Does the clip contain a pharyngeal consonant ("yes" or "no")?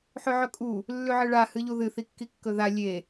yes